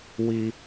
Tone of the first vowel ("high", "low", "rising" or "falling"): high